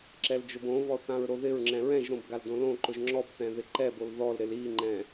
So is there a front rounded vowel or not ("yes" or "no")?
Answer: no